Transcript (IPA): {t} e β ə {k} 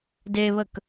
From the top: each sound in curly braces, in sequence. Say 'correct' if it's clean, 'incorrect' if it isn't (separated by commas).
incorrect, correct